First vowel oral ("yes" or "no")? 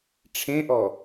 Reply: no